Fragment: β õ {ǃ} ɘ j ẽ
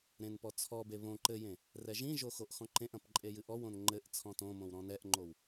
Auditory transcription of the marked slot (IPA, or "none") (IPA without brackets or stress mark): ǃ